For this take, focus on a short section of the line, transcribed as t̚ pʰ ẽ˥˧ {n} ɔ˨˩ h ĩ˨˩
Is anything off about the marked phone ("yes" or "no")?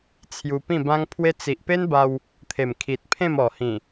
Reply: yes